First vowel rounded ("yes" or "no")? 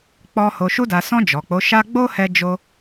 yes